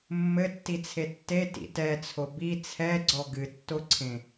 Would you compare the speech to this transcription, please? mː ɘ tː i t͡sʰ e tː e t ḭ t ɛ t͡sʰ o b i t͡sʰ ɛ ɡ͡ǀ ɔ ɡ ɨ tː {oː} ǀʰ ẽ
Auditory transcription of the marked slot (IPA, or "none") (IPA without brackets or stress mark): o